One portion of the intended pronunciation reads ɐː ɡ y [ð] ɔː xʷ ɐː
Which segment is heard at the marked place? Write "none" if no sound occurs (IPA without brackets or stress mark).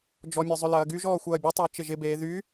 ʒ